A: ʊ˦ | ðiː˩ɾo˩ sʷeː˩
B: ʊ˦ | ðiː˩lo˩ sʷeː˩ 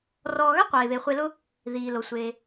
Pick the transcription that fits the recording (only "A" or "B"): B